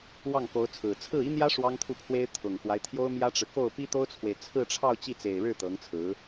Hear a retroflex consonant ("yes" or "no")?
yes